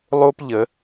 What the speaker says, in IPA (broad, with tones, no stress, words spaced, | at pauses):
lˠo˦pʎə˩˧